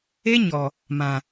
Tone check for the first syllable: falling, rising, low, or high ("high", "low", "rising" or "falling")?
high